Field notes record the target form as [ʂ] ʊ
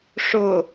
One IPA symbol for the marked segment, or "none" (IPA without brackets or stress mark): ʂ